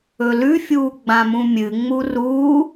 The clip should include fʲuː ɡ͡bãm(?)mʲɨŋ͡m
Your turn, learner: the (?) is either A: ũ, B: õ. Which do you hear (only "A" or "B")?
A